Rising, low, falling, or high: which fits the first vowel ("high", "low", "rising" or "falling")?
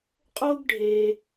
high